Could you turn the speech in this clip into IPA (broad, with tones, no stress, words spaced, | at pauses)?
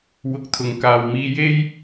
wʊ˨˥k̚t̪ʰʊ˨ŋ kaː˨wmiː˧je˥j